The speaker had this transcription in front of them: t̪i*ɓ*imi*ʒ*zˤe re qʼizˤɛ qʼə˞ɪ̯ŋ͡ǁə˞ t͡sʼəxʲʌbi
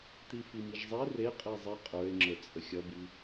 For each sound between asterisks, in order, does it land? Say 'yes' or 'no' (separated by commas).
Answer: no, yes